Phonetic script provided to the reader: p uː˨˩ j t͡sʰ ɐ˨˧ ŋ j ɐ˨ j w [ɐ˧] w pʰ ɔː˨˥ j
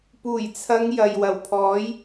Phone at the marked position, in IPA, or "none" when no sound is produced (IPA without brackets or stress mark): ɐ˨˩